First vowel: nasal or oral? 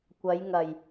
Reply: oral